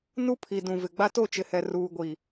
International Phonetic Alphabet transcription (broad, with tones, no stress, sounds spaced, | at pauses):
n u˦ pʰ i˨ d ũ˨ v ɪ˨ ɡ͡b a˦ t o˦˨ t͡ʃ ɪ˨ h ɛ˨ r uː˨ ɡʷ i˨